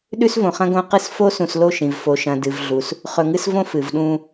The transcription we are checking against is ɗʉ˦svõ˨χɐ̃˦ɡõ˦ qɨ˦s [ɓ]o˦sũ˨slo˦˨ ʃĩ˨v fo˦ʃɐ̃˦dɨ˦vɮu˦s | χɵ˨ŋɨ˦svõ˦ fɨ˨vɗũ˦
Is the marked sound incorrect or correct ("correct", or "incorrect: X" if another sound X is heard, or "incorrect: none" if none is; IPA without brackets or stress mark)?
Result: incorrect: f